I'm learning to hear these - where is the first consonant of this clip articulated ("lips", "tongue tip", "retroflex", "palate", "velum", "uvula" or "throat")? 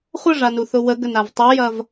uvula